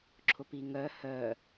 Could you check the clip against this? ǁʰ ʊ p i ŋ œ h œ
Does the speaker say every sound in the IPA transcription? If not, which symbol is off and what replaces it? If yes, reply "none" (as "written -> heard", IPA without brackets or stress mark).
none